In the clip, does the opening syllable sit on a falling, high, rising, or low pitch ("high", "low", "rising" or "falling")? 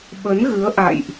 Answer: rising